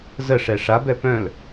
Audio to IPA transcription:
zəʂɛ ʂabɛ pœ̃l

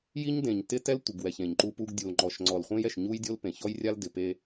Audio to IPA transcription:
ji˦ɲdẽ˨ɲtɪ˦ tɛ˦ltʷɪ˨ɡwɛ˨ç ẽ˨ɲǃu˦pu˦ɡ dʲu˨lŋ͡ǃɔ˨ʃŋ͡ǀɔ˨l χʷẽ˦jɛ˨ʃ ɲu˦jdʲo˦l pẽ˨ çɔ˦jrʲa˦l dɪ˨pe˦

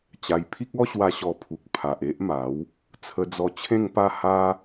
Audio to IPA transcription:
t͡ɕa˧j pʰi˦k̚ɔ˦ɕwa˧ ɕɔ˧pʰu˨k̚ pʰa˨ʔe˦ʔma˨˦w | t͡sʰə˧d͡zɔ˧t͡ɕʰẽ˥˧ŋpa˥˧ ha˦

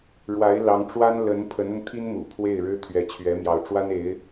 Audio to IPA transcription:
ɻwa˧˥ɪ̯lɑ˧˥ŋʈ͡ʂwa˥n lə˧˥n pʰə˧˥nʊ˧ŋt̪ʰi˥n mṵ˨˩pʰwe˥˩ɪ̯ɻɻ̩˥ t̪ʰɥɛ˧˥t͡ɕʰɥɛ˧˥mjɑ˧˥ʊ̯ʈ͡ʂwa˥n e˧˥ɪ̯

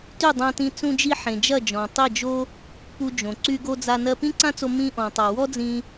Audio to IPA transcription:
ty˦˨dˤã˧tĩ˧ t͡sũ˧d͡ʒi˧ħẽ˨ d͡ʒɐ˦˨d͡ʒɔ̃˨ tˤi˦˨d͡ʒo˦ | pu˧d͡ʒõ˨ ǀy˧ɡo˧d͡za˧ nɜ˧pĩ˦ǀã˦t͡so˧ mĩ˧ʔɔ̃˨ tˤa˨wɔ˦d͡zĩ˧

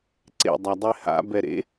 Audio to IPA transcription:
ǀḛ dˤadˤeha̰ bɛɾḛ

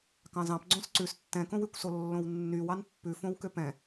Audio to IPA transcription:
kɑ̃zɑ̃p ɡ͡ǀõsǀʉs tːɛ̃kõwykʷso lːõwnːyw ɑnpːʉ fõwkøpɛ̃

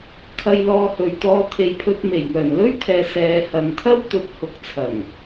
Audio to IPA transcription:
kʰɐ˧jlɔː˧hɵ˨ɥt̪ɔː˧ t̪ʰe˨jpʰɵ˧t̚ me˨˩jŋœː˨˩nlɵ˥ɥt̪ʰɛː˨ sɛː˨hɐ˨nt̪ʰɐ˥w t̪ɵ˨˥t̚hʊ˨˥k̚t͡sʰɐ˨˩ŋ

